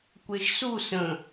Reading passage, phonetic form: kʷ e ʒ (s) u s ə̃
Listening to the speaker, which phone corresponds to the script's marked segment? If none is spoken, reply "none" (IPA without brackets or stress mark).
s